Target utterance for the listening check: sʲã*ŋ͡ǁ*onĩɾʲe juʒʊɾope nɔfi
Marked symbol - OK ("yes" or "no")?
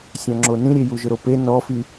yes